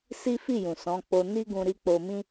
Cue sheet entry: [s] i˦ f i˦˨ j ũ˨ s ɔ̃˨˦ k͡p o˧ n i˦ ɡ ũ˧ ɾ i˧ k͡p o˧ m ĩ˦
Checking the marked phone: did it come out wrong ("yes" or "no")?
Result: no